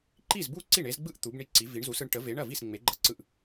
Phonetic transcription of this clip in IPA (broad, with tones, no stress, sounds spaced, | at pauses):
ǃ i˥˩ z b u˥˩ ǀ i˥˩ ɳ e˨˥ z ɡ͡b ɯ˥˩ ʔ t̪ u˨˥ b ɳ i˥˩ ǀ i˨˥ v i˨˥ ɳ z u˨˥ s ɯ˨˥ ɳ ʈ ə˨˥ v e˨˥ ɳ ɐ˥˩ v i˥˩ s ŋ͡m e˨˥ ɡ͡ǃ ɐ˥˩ ǀ ɯ˥˩ ʔ